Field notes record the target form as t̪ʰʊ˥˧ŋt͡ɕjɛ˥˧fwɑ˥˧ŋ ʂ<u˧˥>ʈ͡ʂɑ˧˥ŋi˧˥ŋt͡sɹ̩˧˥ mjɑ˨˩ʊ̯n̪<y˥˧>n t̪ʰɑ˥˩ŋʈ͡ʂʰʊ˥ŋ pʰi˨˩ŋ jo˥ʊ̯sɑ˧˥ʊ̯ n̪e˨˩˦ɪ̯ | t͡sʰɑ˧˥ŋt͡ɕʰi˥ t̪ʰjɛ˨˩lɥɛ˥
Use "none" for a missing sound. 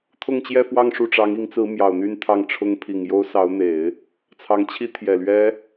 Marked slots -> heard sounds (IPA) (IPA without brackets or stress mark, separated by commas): u˥˩, y˥˧